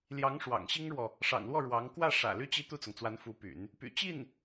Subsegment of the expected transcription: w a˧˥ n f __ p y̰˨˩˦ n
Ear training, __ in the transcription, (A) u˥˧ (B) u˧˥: B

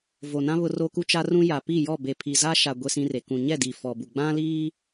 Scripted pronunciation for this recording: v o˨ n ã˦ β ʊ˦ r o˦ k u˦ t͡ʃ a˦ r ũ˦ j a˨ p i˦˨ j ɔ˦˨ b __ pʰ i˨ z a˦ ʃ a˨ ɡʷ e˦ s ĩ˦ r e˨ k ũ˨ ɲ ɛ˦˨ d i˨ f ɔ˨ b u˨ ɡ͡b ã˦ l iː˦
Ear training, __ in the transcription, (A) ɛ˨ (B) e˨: B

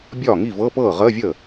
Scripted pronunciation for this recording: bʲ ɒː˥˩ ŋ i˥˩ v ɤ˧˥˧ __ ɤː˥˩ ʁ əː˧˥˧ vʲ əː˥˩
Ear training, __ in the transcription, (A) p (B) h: A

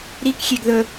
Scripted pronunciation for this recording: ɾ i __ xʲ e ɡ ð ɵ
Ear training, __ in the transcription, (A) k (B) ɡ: A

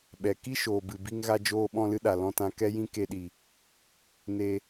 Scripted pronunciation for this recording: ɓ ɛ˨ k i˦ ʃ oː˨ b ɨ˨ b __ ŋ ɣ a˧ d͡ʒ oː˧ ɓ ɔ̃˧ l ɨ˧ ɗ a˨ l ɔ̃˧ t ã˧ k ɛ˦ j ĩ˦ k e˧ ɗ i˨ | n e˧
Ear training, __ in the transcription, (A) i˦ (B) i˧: A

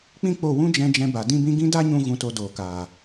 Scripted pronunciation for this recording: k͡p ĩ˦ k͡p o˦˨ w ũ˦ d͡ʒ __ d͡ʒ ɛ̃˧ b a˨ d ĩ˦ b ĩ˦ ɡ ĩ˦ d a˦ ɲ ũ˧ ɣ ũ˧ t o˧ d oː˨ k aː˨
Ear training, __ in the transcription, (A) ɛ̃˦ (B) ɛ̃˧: B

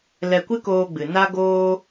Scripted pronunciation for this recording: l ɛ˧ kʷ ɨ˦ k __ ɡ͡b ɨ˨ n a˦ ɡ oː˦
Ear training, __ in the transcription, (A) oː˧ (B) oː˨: A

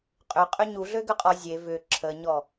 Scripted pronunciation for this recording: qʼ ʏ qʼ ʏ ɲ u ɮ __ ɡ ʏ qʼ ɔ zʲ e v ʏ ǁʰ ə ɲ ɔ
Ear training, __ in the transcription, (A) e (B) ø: B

